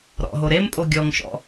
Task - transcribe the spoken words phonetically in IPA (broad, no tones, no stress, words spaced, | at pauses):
ɾɔ̰ɦo ɾempʼo ɡʲɔŋʃɔ̰